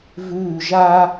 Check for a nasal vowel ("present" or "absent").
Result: absent